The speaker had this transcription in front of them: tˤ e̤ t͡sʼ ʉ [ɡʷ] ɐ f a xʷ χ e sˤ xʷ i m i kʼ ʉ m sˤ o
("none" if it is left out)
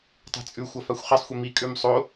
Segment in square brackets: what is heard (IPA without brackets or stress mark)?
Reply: xʷ